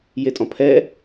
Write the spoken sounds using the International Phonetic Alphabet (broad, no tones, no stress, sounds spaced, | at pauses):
j e tʼ ɔ̃ pʰ ɛ